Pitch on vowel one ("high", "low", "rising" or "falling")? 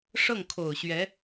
falling